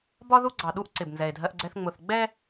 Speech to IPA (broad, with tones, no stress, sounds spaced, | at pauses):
b ɒ˦ ð u˦ ɡ͡ǀ ɑ˨ ɗ u˦ ʔ ǀ ɪ˨ b n z ɛ˨ e̯ dʱ ɜ˦ ʔ ɡ͡ǀ ɛ˦ θ ŋ͡m ʊ˨ θ ɡ͡b ɛ˦